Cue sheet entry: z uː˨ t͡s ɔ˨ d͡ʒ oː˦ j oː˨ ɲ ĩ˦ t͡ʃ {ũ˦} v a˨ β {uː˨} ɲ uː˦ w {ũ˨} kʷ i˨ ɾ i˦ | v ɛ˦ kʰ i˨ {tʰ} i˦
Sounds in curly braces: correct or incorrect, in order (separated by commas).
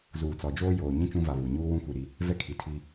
correct, incorrect, incorrect, correct